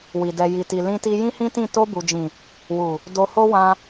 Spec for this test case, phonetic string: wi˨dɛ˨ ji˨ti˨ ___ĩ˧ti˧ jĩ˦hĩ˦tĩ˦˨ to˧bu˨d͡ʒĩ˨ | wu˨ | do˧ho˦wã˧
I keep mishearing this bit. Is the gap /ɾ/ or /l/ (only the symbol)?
l